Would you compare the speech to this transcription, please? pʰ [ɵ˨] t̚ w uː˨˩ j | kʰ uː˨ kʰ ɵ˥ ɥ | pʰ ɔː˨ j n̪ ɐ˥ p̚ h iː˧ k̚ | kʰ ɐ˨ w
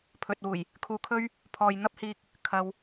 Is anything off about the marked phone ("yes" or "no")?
no